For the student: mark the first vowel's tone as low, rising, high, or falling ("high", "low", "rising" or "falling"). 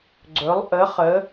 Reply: rising